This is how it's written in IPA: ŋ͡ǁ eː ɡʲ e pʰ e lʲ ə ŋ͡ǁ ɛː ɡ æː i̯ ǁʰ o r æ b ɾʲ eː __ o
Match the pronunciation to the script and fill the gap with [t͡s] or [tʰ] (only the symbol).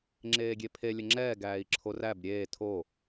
tʰ